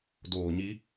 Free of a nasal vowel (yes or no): yes